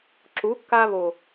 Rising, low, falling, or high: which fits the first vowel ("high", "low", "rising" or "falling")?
rising